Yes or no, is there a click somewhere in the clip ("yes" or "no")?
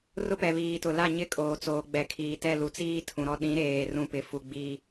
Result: no